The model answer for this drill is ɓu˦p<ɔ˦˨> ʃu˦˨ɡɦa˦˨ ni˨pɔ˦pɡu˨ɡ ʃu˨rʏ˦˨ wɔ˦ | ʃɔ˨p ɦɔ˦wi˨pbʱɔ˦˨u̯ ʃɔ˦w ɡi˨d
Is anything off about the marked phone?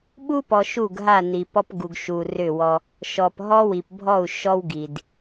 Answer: yes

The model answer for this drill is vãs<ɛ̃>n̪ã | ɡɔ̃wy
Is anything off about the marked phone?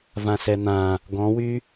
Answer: yes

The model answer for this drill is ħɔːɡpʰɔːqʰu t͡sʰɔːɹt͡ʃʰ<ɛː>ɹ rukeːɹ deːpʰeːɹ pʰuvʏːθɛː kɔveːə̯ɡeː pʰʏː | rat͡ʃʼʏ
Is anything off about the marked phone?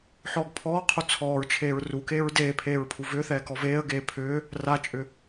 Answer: yes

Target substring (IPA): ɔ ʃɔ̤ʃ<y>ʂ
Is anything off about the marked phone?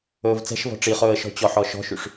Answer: no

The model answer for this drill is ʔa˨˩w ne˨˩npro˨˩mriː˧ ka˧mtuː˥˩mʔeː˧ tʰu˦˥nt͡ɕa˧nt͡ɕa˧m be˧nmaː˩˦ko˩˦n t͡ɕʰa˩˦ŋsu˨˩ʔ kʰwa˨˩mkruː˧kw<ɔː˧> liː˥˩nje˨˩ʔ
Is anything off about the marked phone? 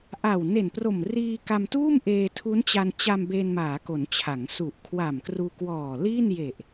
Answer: yes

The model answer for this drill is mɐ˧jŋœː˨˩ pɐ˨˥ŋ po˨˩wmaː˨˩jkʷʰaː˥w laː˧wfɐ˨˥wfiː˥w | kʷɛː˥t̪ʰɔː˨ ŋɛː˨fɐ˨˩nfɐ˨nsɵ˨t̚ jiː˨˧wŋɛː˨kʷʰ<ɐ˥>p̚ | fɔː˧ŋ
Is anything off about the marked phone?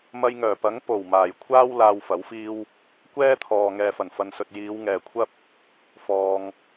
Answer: no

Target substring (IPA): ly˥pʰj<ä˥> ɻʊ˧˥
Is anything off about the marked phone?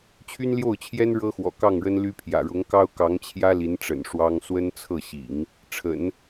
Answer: yes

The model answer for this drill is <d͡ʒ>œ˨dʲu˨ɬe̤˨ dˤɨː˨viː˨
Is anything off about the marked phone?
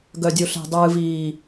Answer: yes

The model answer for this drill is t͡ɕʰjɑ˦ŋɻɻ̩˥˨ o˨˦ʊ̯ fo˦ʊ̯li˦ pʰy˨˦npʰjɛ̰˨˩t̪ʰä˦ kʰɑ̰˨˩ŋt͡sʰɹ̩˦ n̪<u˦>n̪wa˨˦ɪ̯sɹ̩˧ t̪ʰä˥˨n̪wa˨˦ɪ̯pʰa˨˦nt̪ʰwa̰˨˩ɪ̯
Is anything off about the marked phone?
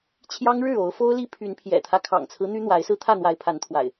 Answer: yes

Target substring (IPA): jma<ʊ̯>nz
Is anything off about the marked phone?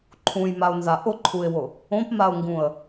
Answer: no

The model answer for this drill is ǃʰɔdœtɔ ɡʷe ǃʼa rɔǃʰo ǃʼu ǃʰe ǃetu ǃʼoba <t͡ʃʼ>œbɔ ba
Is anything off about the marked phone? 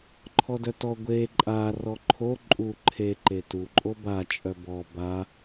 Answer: no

